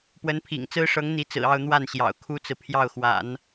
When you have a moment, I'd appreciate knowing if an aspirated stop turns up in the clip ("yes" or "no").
yes